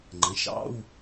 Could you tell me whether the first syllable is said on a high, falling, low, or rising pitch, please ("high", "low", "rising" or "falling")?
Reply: rising